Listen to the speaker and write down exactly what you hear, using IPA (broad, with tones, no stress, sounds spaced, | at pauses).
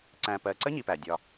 ǀ æ̃˨ p ɜ˨ ǀ ə˦ ɲ i˦ p æ˨ dʲ ɒ˦